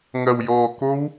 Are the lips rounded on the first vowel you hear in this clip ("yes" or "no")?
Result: no